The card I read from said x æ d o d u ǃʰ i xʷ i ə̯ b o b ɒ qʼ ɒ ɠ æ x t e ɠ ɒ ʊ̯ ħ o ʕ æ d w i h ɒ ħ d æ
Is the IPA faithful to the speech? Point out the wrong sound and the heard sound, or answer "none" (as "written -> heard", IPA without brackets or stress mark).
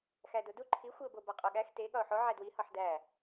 none